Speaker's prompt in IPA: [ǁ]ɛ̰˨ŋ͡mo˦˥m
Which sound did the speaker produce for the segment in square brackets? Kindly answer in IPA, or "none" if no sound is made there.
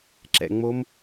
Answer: ǁ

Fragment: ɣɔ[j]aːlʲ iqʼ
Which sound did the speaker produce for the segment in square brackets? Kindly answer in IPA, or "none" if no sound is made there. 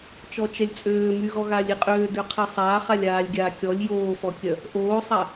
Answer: ɣ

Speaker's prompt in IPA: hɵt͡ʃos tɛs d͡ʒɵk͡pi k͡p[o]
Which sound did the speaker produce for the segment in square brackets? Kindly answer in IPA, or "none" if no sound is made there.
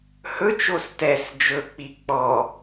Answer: ɔ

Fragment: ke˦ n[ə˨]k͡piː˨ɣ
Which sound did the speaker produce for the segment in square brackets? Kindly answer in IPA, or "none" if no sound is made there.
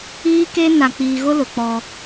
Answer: a˨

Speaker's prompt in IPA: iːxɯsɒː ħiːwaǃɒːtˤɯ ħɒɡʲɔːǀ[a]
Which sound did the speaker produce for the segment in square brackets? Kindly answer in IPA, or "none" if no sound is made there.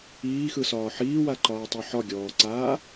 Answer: aː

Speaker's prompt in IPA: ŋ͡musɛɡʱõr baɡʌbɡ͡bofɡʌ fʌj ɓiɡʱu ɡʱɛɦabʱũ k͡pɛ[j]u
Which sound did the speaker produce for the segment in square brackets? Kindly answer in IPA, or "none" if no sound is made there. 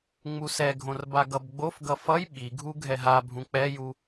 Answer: j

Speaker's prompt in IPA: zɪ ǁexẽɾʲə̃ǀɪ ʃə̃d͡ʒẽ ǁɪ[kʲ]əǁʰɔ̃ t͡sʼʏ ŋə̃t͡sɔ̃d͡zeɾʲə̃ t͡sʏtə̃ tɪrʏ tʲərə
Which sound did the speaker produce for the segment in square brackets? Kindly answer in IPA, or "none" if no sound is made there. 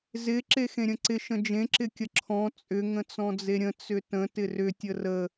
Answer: kʲ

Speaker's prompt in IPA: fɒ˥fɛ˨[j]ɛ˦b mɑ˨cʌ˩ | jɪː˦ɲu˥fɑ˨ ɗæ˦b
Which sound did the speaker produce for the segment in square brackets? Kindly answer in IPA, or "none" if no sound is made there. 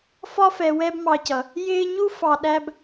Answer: w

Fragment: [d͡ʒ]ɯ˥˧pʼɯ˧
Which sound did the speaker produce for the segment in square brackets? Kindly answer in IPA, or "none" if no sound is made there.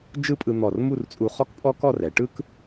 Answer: d͡ʒ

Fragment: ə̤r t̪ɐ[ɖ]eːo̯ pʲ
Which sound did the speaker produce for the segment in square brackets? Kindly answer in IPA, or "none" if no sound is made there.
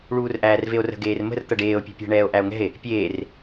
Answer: ɖ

